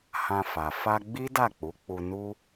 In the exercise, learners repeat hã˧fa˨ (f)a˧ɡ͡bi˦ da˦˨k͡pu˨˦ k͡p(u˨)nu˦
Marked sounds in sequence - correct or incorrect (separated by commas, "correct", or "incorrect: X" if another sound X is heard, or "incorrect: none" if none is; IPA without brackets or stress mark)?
correct, incorrect: u˧